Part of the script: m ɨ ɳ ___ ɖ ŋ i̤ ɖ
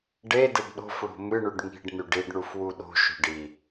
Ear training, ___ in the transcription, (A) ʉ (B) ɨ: A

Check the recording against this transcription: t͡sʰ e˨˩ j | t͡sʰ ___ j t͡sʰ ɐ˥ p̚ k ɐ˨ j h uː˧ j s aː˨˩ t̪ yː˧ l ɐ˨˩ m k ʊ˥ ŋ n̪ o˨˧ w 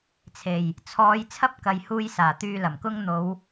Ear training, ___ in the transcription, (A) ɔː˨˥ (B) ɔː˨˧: B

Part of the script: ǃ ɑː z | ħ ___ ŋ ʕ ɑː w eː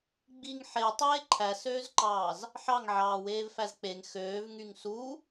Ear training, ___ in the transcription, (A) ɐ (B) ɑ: B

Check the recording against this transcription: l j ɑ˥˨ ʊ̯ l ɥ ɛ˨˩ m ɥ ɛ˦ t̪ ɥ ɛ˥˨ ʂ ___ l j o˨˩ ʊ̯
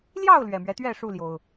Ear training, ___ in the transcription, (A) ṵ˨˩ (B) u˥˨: B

